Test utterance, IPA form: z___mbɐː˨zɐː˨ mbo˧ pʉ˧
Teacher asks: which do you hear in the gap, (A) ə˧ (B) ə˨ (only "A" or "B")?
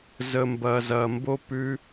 B